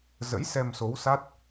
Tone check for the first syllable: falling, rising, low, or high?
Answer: rising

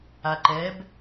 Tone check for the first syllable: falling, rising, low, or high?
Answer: low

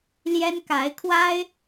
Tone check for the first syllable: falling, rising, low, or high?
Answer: high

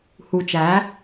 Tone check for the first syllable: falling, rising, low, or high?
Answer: low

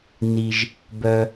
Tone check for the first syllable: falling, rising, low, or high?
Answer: low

